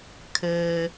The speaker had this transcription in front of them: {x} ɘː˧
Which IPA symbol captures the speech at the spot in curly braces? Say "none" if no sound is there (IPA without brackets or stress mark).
kʰ